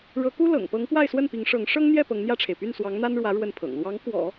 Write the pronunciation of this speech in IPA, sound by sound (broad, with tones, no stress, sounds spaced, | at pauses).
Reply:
ɻ ɤ˧˥ k u˥ l ɤ̰˨˩ ŋ p ɤ˧˥ ŋ p w a˥˧ ɪ̯ s w ə˥˩ n p i˧˥ ŋ ʂ ɤ˧˥ ŋ ʂ ɤ˥ ŋ n̪ j ɛ˥˩ p ɤ˧˥ ŋ n̪ j ä˥˩ ʈ͡ʂʰ e˩ ɪ̯ p y˥˩ n s w ɑ˧˥ ŋ n̪ a˥ n ɻ w ä˧˥ ɻ w ə˥˩ n pʰ ɤ̰˨˩ ŋ l w ɑ˧˥ ŋ k w ɔ̰˨˩˦